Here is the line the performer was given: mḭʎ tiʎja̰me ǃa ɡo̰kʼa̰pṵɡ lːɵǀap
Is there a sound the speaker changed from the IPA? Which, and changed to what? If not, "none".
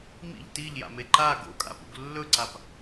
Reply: none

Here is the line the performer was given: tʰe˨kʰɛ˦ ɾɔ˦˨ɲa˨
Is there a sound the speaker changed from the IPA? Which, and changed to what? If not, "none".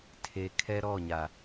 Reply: none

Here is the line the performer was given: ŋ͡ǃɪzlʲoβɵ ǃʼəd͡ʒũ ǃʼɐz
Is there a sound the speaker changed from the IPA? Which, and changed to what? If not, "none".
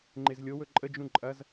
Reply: β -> w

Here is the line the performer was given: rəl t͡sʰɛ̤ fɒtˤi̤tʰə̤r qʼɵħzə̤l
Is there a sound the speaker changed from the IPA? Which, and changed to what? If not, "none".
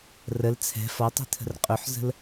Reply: none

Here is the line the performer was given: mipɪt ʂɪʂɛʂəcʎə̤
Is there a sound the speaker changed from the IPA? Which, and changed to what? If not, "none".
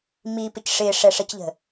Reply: t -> c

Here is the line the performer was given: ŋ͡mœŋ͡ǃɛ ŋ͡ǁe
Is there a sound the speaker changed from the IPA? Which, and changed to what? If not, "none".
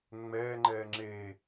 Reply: œ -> ɛ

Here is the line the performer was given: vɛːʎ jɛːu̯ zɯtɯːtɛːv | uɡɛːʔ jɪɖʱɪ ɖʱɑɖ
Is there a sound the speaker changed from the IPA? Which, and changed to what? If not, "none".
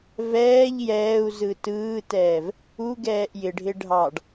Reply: none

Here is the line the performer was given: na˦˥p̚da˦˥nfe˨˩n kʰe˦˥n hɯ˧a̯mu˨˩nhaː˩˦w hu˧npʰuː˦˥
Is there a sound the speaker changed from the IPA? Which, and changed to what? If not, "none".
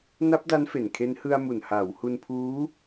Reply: none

